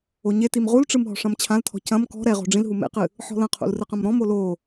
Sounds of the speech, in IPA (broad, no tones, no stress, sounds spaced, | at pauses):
o ɲ e t i m ʁ u l ʈ͡ʂ ɨ m ɦ ɔ̤ ʂ ɐ̃ m t͡ɕʰ ã l tʰ ɔ̤ c ɐ̃ m k ɔ̤ ɾ ɛ ʁ o̤ ɖ͡ʐ ĩ l ɦ u m ḛ q ɨ | ħ ɔ̤ l ɐ̃ qʰ ṵ l r ɨ q ɐ̃ m ɾ ɔ̃ m o l o